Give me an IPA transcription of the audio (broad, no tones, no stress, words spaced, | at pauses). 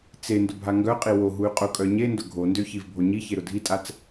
t͡se ndʊbʱaŋɡœqʼi woɦuy̯ qʼʊkʼœ ɲendʊ ɡʱondø çivbʱoɲiçe ɾʊdʱitʼat͡s